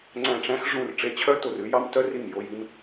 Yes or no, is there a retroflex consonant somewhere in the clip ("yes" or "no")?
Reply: yes